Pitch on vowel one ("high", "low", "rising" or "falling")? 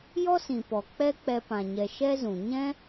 high